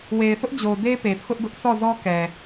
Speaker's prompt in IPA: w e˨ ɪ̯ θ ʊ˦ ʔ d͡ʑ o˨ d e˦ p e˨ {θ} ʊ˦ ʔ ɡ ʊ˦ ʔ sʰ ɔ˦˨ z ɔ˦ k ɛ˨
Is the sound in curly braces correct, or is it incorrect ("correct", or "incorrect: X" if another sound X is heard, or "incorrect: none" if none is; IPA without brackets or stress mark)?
incorrect: tʰ